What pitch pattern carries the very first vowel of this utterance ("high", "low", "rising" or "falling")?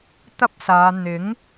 high